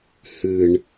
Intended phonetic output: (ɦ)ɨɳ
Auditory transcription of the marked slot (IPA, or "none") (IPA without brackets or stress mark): h